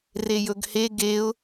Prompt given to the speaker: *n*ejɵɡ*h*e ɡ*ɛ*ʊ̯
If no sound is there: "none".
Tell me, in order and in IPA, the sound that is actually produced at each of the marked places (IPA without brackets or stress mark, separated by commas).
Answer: r, h, e